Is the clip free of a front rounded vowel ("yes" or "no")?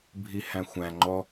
yes